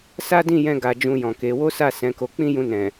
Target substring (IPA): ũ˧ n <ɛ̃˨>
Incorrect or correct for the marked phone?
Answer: correct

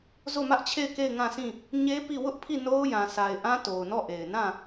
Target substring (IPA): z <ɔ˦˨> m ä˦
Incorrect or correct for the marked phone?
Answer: incorrect: o˦˨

